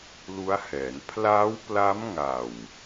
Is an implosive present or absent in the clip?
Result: absent